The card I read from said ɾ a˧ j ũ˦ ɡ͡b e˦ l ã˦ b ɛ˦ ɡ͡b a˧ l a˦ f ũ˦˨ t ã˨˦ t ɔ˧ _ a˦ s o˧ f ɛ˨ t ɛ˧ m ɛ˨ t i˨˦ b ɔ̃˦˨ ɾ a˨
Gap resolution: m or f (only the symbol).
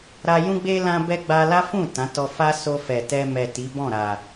f